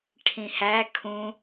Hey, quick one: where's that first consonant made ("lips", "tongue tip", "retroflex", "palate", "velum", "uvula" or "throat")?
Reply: retroflex